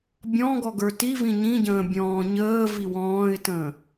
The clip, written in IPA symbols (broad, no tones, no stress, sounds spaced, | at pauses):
bʲ ɔ̃ ɡ ɔ ɡ ə˞ t i v ĩ ɲ ĩ ɟ ə̃ː bʲ ɔ̃ː ɲ əː v i w ɔ̃ː ɪ̯ t ə̃ː